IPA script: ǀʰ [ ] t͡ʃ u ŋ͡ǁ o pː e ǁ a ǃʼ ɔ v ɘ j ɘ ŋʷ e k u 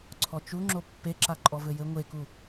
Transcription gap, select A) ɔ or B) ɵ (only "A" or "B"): A